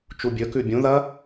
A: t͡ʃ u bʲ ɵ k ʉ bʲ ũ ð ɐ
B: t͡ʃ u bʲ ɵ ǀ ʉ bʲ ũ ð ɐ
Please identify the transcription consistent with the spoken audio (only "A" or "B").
A